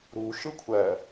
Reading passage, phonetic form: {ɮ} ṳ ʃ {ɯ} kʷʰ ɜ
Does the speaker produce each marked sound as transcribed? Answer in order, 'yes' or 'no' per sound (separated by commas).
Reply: no, yes